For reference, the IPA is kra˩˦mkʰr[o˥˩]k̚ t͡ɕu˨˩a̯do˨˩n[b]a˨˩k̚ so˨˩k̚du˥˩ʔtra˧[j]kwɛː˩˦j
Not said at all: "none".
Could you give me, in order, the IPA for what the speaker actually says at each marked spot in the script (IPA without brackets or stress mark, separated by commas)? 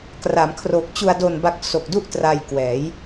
o˨˩, b, j